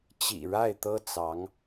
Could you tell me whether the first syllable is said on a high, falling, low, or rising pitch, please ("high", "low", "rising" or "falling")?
low